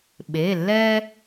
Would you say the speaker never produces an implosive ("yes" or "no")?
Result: no